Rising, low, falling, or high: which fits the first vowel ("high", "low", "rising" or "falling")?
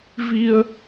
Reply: high